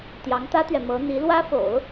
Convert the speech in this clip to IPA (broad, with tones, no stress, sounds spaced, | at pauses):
t̪ j ɑ˧˥ ŋ t̪ ä˥ t̪ ɥ ɛ˨ m ɤ˧˥ n̪ i˧˥ l w ä˥ f o̰˨˩˦ ʊ̯